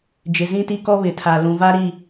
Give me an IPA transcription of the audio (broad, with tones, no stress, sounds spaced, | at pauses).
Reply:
d͡ʒ ɪ˨ z ĩ˦ t i˦ k ɔ˦ β ɪ˨ tʰ a˨ l ũ˨ v a˦ ɾ i˦˨